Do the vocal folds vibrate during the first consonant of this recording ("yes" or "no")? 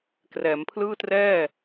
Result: no